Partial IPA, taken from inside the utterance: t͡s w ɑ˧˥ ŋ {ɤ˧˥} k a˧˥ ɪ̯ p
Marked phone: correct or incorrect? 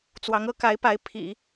correct